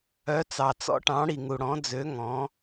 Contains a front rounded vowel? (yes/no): yes